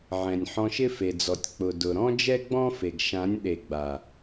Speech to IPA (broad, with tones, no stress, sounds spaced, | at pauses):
ʕ ɛ̃˨ nʲ ħ ɔ̃˧ ʃ ɪ˦ f e˨ d͡z ɔ˨ tʲ k͡p ʊ˨ d ʊ˨ ɾ ɔ̃˦ d͡ʒ ɛ˦ ɡ͡b ɔ̃˦ f e˨ ɡ ʃ ã˨˦ nʲ ɗ e˨ ɡ͡b a˨